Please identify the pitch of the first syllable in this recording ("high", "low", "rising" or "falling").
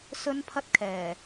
high